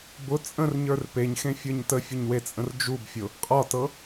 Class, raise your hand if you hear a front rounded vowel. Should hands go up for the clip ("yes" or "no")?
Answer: no